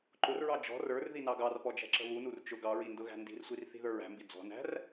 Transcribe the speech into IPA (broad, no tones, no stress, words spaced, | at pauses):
ǃʊrɹɑ d͡ʒɔ̤ rə˞r ðinɑɡɑrpɔ d͡ʒæ̤ǁə̤βunur t͡ʃʊ ɡɑɹi ndʊɣæ̤ndi̤rsʷir θi̤ðə˞ɹæ̤mbi d͡zɔ̤næ̤r